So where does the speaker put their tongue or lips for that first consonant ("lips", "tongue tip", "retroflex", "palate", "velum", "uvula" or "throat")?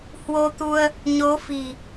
throat